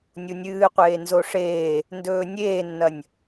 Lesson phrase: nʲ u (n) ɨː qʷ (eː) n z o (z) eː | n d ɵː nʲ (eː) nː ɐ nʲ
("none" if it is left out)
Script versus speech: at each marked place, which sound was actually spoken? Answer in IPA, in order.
nʲ, eː, ʂ, eː

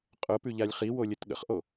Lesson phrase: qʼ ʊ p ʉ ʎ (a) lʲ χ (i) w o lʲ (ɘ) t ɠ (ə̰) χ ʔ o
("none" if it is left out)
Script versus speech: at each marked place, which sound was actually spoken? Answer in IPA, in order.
a, i, ɘ, ə̰

